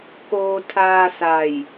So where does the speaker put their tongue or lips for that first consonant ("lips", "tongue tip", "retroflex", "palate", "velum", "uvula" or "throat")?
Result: velum